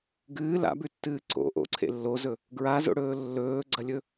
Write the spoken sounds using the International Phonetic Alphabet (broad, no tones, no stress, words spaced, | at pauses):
ɡɨː la̰bʉtːɨː ǀo̰ ʔo̰ǀʰḛ lːozɵ | ɡɹazo̰ɽɵː lːɵːɡ͡ǀɐlʲɵ